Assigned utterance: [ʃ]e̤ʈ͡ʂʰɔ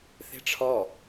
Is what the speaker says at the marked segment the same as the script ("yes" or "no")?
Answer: no